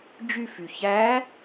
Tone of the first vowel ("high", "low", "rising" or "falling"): falling